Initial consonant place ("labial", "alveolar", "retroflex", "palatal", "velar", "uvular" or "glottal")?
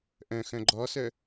glottal